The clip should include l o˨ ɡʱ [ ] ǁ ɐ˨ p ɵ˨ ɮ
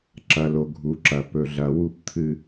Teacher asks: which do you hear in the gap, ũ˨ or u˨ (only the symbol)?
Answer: u˨